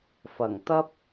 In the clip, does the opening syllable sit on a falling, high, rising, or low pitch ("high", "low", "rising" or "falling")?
low